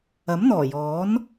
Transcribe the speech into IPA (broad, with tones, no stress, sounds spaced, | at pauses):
ɐ˨˥ m n̪ ɔː˨˩ j ɔː˨˥ n